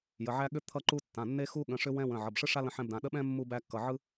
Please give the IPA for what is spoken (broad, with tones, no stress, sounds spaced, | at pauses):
j ə˩˧˩ ʕ æ˦ ɠ ʏ˦ t̪ʰ ʌ˦ ǃ u˦ tː ã˩˧˩ nː e˦ x u˦ ɠ ə̃˩˧˩ ʂ ʏ˦ w ɛ̃˦ w ə̃˩˧˩ ʕ ʌ˩˧˩ b ʂ ɯ˦ ʂ a˦ l ə̃˦ ħ ɛ̃˦ b d ã˩˧˩ ɗ ə˦ ɓ ɛ̃˦ mː u˦ b æ˦ kː ʌ˩˧˩ ʕ ɯ˦